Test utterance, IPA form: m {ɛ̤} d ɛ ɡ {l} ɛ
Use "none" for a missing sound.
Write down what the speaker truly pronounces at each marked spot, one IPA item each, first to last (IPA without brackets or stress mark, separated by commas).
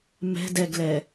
ɛ̤, l